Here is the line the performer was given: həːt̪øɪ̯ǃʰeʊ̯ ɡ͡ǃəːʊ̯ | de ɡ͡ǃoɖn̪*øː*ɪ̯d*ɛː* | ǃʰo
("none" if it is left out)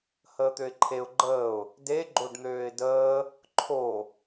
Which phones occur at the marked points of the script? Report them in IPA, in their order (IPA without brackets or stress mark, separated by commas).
øː, əː